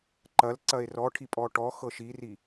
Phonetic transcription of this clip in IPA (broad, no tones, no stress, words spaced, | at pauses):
ǃɐl ǀɐe̯rɔʈʰi pʼɔʈɔxɤ ʃiri